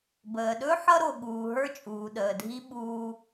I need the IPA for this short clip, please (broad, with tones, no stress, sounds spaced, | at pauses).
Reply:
b əː˩ ɗ ɵ˥ ħ ʌ˥ ɾ o˩ ɠ uː˩ ɦ ə˞˥ t͡ʃʼ uː˩ ɗ əː˩ dʱ i˥ ɓ uː˥